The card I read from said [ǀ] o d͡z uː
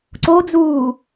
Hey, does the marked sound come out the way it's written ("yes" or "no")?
yes